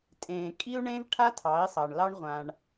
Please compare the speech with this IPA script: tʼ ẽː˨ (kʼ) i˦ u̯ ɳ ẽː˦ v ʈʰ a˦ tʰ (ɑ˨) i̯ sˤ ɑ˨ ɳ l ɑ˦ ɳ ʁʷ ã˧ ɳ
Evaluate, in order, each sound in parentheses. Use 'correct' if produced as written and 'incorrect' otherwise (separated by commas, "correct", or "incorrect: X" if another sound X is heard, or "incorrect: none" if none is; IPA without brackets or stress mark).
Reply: correct, incorrect: ɑ˨˦